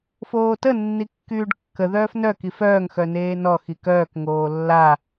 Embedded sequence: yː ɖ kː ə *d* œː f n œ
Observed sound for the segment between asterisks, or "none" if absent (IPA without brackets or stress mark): ð